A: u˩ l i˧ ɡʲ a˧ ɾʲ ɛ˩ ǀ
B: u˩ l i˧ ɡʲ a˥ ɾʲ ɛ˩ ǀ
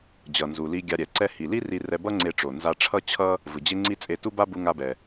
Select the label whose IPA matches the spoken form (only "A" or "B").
A